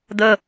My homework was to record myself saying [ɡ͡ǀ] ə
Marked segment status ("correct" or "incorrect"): incorrect